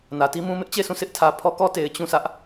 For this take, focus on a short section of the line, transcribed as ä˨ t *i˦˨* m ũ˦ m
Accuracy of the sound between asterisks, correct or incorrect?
incorrect